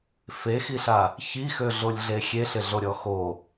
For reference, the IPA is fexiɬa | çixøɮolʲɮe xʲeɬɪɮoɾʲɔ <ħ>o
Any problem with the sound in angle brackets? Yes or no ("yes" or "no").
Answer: yes